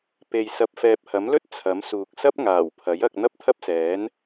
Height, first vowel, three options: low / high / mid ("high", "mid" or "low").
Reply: mid